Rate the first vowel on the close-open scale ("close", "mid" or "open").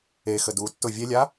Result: mid